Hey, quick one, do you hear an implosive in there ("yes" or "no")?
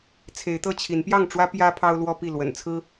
no